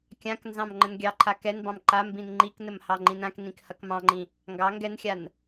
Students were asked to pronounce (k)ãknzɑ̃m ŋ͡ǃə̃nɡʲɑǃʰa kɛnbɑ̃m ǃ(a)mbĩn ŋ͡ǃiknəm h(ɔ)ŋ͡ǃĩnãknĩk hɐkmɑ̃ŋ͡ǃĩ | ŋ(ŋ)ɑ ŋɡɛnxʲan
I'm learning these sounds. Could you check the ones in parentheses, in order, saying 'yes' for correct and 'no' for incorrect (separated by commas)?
no, yes, no, no